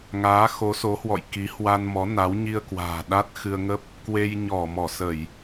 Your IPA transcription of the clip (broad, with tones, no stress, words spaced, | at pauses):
ŋaː˨˦xo˨˦so˨˦hwɔ̰˧˨j ki˨˦ hwa˧nmɔ˨˦ na˨˦w ɲi˧ə̯kwa̤ː˨˩ ɗa˦˥t̚xɨ˧ə̯ŋə˦˥p̚ | kwe˧j ɲɔ˧˩ mɔ˧˩sə˧˩˨j